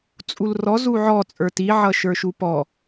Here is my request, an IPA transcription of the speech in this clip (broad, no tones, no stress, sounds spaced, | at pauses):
t͡sʼ u l r ɔ z u ʕ ɔ t͡sʼ ə˞ t i ʕ ʌ ʃ ə˞ ʃ u p ɔ